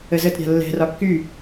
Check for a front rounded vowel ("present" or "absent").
present